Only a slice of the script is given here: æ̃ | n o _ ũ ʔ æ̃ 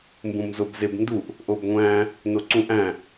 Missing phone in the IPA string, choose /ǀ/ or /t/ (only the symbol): ǀ